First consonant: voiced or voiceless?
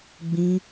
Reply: voiced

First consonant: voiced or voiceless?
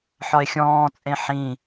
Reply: voiceless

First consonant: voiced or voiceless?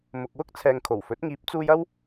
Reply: voiced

